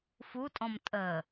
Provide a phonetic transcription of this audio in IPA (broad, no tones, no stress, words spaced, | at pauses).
futʼɔ̃m tʼəː